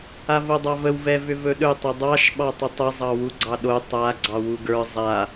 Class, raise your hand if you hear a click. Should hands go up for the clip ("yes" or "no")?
yes